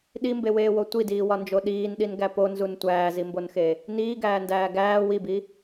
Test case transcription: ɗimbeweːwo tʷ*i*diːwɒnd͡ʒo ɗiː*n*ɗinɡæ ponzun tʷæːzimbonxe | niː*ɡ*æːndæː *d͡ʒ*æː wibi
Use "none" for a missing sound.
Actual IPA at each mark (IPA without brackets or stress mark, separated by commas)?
i, n, ɡ, ɡ